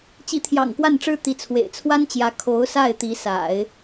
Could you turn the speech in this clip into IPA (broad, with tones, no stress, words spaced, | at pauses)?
t͡ɕi˧˥t̪ʰjɑ̰˨˩ŋkwa˥˩nʈ͡ʂɻ̩˥ t̪i˧˥t͡sʰwḛ˨˩ɪ̯ t͡sʰwa˥nt͡ɕjä˧˥ kʰo˧˥ʊ̯sa˥˩ɪ̯t̪i˧˥sa̰˨˩˦ɪ̯